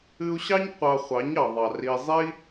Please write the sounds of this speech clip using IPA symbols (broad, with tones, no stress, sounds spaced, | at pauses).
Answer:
ɨ˧ u̯ ɕ ɑ˦ ɲ qʷ ɑ˧ χʷ ɑ˨˦ ɲ ɑ˨ ðˤ ɑ˨ r i˧ zˤ i˦